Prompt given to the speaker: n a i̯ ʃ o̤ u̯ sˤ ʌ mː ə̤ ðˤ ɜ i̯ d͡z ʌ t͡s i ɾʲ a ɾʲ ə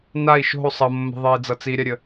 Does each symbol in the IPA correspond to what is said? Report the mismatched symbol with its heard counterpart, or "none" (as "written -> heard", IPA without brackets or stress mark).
none